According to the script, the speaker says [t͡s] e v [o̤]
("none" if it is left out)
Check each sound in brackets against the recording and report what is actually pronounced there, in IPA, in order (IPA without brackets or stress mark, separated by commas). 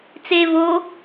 t͡s, o